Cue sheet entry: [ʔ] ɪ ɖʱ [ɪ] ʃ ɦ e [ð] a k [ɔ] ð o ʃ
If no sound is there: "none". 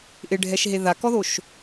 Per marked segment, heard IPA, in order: ʔ, ɛ, ð, ɔ

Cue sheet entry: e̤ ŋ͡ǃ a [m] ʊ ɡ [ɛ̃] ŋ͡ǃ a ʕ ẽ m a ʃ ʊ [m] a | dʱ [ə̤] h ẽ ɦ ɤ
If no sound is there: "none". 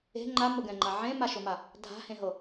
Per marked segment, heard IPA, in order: m, ɛ̃, m, a̤

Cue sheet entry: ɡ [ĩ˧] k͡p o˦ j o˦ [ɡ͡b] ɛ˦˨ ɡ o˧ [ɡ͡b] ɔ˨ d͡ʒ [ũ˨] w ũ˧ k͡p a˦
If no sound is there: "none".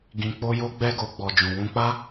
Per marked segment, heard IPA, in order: ĩ˧, ɡ͡b, ɡ͡b, ũ˨

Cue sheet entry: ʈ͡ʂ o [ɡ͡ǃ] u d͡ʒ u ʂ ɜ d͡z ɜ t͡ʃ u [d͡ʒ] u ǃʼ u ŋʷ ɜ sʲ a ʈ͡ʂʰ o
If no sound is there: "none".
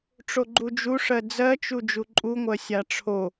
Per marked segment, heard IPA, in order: ɡ͡ǃ, d͡ʒ

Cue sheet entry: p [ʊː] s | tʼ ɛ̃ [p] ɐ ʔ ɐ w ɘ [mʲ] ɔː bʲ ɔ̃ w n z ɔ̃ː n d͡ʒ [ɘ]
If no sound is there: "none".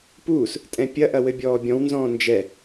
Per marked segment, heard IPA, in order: uː, pʲ, bʲ, ɛ

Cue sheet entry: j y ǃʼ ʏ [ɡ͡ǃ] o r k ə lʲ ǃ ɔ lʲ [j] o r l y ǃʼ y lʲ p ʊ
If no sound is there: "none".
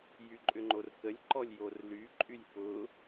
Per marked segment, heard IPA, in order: ŋ͡ǃ, j

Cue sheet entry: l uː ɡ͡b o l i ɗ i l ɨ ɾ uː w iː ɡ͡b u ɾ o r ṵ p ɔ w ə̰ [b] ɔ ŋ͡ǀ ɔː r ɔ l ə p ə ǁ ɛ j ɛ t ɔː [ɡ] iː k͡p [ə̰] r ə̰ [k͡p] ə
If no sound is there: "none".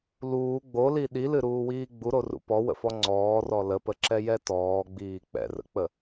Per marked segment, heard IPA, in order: f, ɡ͡b, ɛ̰, k͡p

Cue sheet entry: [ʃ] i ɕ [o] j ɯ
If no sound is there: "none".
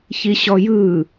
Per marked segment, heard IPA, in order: ç, ɔ

